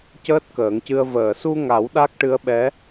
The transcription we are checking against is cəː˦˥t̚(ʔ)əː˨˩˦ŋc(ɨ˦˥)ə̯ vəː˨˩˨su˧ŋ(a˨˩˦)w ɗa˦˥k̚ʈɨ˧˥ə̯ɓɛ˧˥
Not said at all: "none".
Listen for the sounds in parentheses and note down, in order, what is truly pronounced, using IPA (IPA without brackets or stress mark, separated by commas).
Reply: k, ɨ˧, a˨˩˦